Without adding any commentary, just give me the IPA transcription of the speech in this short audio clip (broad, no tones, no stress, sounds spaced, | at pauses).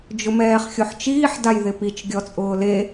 d͡ʒ ʊ m ɛː χ xʲ o ħ t͡ʃ iː ħ d a j ð ɪ p i t͡ʃ ɡʲ ɔ t͡sʼ ʊː l e